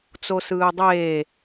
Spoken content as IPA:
t͡s o s ɯː dˤ eː

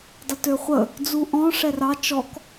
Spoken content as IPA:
dˤ ə t ø χʷ ə | d͡z u ʔ ɔ̃ ʂ ɛ r ɑ t͡ʃ ɔ k

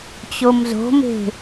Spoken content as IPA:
t͡ɕ o m z o̤ m e̤

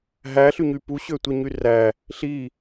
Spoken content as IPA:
ɦ æ ɬ y ɲ y p u ɕ ø tʷ e ɲ y r æ | ɬ i

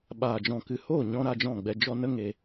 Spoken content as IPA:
ɓ aː˨ d͡ʒ ɔ̃˨ k ɨ˨ h oː˦˨ ɲ ɔ̃˧ ɾ a˧ d͡ʒ ɔ̃˦˨ ɡ͡b ɛ˧ d͡ʒ ɔ˧ n ə˦ ŋ e˧

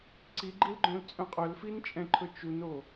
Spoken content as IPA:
ǀ i ɡ͡ǃ i l ɡ͡ǃ œ̃ l t͡sʼ œ̃ qʼ œ l f i n t͡ʃʼ ɛ̃ ǃʰ ɵ t͡ʃ u n o

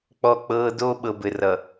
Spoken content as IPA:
k͡p ɔ˦ k͡p ɤː˦ d oː˦ ɓ ɤ˨ b ɘ˨ r ʌ˨

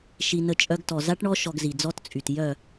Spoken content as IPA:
ʃ i˧ n ə˧ t͡ʃʼ œ˧ ɡ t ɔ˨ z a˦ ʈ ɳ ɔ˦ ʃ ɔ˧ ɡ z i˨ d͡z ɔ˦ t t͡sʼ y˨ t j œ˦˨

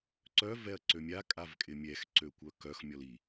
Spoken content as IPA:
ǀ œ v ɛ ɐ̯ ǀ ø mʲ a kʼ a v kʼ ɪ mʲ ɛ x ǀ ø kʷ œ k œ x mʲ ɔ l i

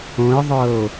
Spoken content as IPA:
õ e̯ ðˤ ɤ o̯

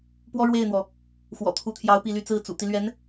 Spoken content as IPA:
p w ɔ˥ ɻ w e˥˩ ɪ̯ n̪ w ɔ˩ | x w ɔ̰˨˩ t̪ʰ u˧˥ t̪ʰ j ɑ˧˥ ʊ̯ p i˥˧ l y˥˧ t͡s ɹ̩˥˩ t͡s ṵ˨˩ t̪ i˦ l ɥ ɛ˧˥ n

